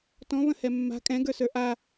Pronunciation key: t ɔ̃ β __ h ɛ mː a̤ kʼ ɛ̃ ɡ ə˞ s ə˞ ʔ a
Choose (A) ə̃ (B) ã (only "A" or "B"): A